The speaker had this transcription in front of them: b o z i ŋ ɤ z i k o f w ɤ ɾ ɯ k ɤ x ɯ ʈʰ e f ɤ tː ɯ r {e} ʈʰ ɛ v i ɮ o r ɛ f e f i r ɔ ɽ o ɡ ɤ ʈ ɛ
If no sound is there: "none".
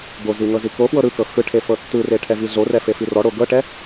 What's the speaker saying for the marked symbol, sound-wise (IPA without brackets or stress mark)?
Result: e